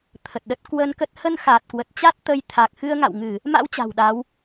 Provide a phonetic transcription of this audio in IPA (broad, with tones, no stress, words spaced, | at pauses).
t̪ʰə˨˩t̚ɗə˦˥t̚ kwə˧nkə˦˥t̚ hə˧nxa˨˩t̚ kwə˨˩t̚t͡ɕa˦˥t̚ t̪ə˧j t̪ʰa˨˩k̚ xɨ˧ə̯ŋa̰˧˨wŋɨ˧˩˨ | ma̰˧˥w t͡ɕa̤˨˩wɗa˨˦w